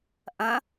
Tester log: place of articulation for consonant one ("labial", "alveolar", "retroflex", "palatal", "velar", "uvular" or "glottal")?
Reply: glottal